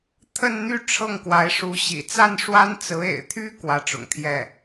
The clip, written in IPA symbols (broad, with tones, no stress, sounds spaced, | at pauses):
t̪ʰ ə˥˧ n n̪ y˥˧ ʈ͡ʂʰ ɤ˥˩ ŋ k w a˧˥ ɪ̯ ʂ u˧˥ ɕ ḭ˨˩ t͡s a˥˩ n ʂ w a˥ n t͡s ɹ̩˧˥ ḛ˨˩ ɪ̯ t̪ʰ y˥ k w ä˧˥ ʈ͡ʂ ʊ̰˨˩ ŋ t̪ʰ j ɛ˥˩